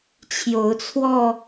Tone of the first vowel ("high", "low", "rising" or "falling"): rising